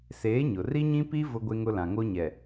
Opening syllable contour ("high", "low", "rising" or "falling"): rising